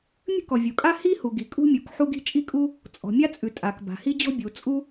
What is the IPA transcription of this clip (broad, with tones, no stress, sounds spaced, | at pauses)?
mʲ ə̤˥ k ɔ˩ vʲ u˩ kʼ a˥ h i˥ h u˩ ɡ i˩ kʼ ṳ˥ mʲ u˩ k ħ u˥ ɡ i̤˥ t͡ʃʼ i˥ kʼ u˥ | t͡sʼ ɔ̤˩ mʲ a˥ t͡sʼ ʉ˩ tʼ a˩ k b a̤˩ h i˥ d͡ʑ ɔ̤˥ bʲ u˩ t͡sʼ u˥